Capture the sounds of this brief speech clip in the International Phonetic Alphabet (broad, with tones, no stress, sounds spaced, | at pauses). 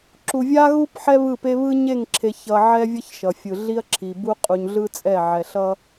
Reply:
ǁ u˨ vʲ a˦ ɣ u˦ p ħ ɛ˦ β ɯ˦˨ p e˦ β ɯ˦ ɲ e˦˨ ŋ ǁʰ e˨ ç ʌ˨ ʕ ɛ˦ vʲ ʌ˦ ç ʃ ʌ˨ fʲ ɯ˨ ɮ i˦ ɐ̯ ǁʰ i˨ b u˦ qʼ u˨ ɲ ɮ ɯ˦ t͡sʼ ɛ˦˨ ʕ ɛ˨ ɬ ʌ˦